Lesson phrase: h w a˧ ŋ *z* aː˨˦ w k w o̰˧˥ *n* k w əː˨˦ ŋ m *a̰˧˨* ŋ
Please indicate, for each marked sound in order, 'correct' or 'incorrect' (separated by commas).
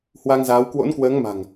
correct, correct, incorrect